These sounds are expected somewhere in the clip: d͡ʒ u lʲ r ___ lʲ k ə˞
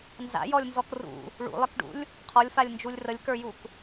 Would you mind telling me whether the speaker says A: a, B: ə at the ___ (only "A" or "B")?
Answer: B